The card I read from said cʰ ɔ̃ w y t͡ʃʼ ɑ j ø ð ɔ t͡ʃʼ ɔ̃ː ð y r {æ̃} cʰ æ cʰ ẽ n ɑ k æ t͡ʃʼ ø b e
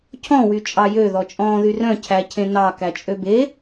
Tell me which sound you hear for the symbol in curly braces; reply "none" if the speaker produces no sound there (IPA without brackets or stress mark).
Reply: œ̃